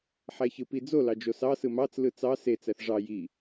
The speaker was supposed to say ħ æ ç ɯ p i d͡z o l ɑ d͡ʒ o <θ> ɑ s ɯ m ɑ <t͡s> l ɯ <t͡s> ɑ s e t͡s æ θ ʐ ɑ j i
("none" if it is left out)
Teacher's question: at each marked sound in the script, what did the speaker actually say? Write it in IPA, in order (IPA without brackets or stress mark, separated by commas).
s, t͡s, t͡s